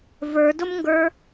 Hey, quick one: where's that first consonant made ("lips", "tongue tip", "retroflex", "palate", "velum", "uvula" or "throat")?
lips